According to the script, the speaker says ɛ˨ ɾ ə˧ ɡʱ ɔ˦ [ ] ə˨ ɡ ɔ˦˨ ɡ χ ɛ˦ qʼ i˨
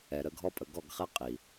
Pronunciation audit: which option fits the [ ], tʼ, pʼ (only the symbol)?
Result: pʼ